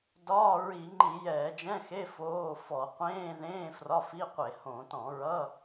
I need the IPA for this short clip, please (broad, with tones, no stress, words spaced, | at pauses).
dɒː˧˥˧ ɹi˧˩˧ŋ͡ǃi˧˩˧ jɛː˧˩˧d͡ʒɛ̃˧˥˧xe˧˥˧ foː˧˥˧fɔ˧˩˧ qʷẽː˧˥˧ðẽː˧˥˧ frɒ˧˥˧fi˧˥˧qʷe˧˩˧ hõ˧˩˧ tɔ̃˧˩˧ɹʌ˧˥˧